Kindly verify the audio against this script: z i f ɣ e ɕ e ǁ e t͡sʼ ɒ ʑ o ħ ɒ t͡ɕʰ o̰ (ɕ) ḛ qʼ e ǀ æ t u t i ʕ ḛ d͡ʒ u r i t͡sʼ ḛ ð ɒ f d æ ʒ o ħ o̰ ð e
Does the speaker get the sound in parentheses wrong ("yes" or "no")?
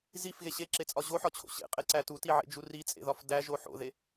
no